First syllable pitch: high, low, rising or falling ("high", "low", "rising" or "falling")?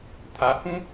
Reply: rising